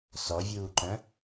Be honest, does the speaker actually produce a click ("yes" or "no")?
yes